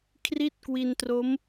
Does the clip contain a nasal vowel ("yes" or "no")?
no